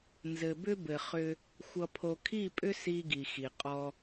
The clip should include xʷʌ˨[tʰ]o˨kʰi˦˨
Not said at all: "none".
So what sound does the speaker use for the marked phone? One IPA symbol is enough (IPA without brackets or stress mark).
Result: pʰ